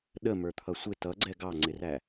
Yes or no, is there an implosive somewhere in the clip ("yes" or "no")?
yes